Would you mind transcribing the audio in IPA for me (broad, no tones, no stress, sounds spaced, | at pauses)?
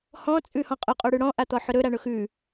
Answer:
h ɔ̃ t͡sʼ ʉ h ɔ̃ qʼ ʊ qʼ o ɽ ʉ ɽ ɔ̃ ʔ a t̪ ɔ ħ ʊ ɾ ɵ ɾ a ɳ ʊ x ʉ